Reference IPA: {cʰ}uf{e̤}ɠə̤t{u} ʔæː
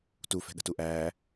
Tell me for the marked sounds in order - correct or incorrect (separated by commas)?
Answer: incorrect, incorrect, correct